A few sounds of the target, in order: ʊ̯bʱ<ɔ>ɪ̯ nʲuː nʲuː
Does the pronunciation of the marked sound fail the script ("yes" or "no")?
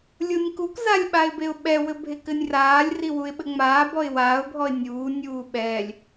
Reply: no